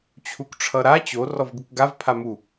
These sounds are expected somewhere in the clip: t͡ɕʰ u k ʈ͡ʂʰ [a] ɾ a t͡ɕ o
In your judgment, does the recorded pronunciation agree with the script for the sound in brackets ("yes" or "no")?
no